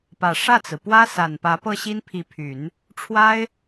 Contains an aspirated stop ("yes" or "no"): yes